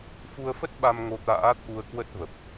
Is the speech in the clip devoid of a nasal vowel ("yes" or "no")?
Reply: yes